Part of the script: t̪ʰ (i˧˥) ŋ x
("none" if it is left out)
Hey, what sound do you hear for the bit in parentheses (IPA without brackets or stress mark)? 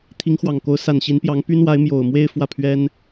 i˧˥